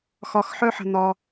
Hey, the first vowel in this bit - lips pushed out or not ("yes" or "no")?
yes